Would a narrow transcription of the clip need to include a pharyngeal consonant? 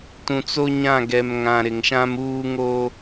no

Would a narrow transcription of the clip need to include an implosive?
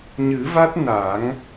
no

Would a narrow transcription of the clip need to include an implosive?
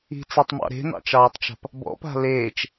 no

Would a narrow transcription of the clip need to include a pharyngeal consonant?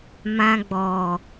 no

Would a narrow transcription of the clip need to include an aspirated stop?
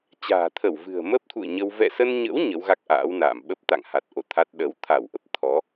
yes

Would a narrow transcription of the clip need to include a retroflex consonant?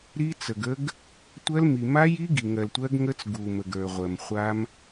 no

